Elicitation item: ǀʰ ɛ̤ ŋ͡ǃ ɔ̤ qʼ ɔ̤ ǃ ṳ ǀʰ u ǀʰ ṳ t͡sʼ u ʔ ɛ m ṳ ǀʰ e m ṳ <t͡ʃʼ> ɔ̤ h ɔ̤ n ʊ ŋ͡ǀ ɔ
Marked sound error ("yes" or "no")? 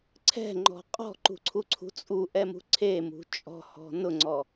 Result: no